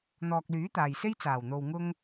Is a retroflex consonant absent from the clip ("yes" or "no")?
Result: yes